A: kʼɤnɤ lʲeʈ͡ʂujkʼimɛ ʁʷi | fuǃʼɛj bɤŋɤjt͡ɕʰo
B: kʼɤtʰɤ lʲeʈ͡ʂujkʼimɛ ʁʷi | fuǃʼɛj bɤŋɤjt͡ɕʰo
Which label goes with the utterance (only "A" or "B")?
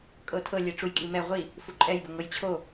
B